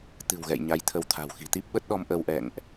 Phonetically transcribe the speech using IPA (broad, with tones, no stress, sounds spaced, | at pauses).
t̪ ɨ̤˨˩ w ɣ ɛ̰˧˨ j ɲ a˧ j t̪ʰ ə˧ w t̪ʰ a̤˨˩ w x i̤˨˩ t̪ i˦˥ p̚ ɓ ə˦˥ t̚ ɗ ɔ˧ m ʔ ə˧ w ʔ ɛ̰˧˨ ŋ ʔ